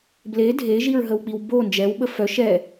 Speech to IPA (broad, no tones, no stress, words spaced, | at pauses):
ble dʱeʒiɹɦəwk͡piw bo nd͡ʒɛwɓə fœ ʃɛ